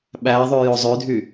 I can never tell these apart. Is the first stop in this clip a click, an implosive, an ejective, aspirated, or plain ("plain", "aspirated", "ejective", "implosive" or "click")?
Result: implosive